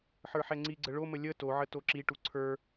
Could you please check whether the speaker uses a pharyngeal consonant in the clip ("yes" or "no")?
yes